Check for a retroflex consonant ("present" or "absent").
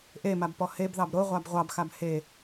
absent